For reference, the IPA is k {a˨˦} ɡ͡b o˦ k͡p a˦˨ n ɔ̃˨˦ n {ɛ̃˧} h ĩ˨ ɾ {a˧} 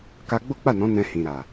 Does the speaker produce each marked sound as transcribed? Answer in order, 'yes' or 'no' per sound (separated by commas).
no, yes, no